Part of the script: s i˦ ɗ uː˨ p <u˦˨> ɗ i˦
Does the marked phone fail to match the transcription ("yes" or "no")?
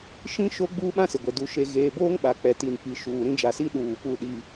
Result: no